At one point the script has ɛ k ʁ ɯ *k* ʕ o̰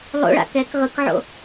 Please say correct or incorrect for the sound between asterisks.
correct